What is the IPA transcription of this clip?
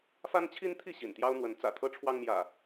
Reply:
f a˦ n t͡ɕʰ i˦ n t̪ʰ i˥˨ ɕ ḭ˨˩ n t̪ j ɑ˦ ʊ̯ n̪ w ə˨˦ n t͡s ä̰˨˩ t̪ʰ ɤ˦ ʈ͡ʂʰ w ɑ˦ ŋ m j ä̰˨˩

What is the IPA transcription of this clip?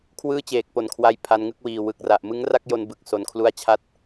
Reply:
kʰ w ɯː˥˩ t͡ɕ eː˨˩ k̚ p o˨˩ n kʰ w a˧ j pʰ a˧ n ŋ ɯ˥˩ k̚ w iː˨˩ w ɯ˨˩ k̚ r a˨˩ ʔ m ɯ˦˥ ŋ r a˥˩ k̚ j o˧ n b ɯ˨˩ k̚ s o˨˩ n kʰ l u˧ a̯ t͡ɕʰ a˦˥ t̚

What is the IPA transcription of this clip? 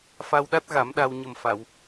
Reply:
f a˧ w ɗ a˦˥ t̚ ɣ a˨˩˦ m ɗ a˧ w ɲ ə˨˩ m f a˨˩˨ w

